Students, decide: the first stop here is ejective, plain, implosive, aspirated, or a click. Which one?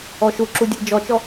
click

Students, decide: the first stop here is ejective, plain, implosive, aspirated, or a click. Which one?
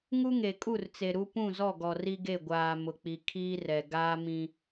ejective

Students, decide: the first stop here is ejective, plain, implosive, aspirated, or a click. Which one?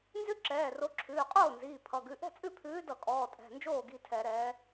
click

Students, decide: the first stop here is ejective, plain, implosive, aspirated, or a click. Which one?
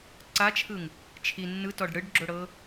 click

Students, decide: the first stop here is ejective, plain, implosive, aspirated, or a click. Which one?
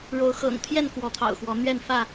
aspirated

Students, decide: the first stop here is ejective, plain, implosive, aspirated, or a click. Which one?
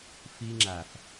click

